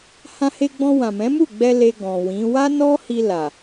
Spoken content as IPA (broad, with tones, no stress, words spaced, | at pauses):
hã˧he˧ɡ͡bɔ̃˧ wã˨mɛ̃˨˦mu˦˨ɡ͡bɛ˧ le˧ ɡɔ̃˨wĩ˨˦ wa˦nɔ˦hi˧ la˨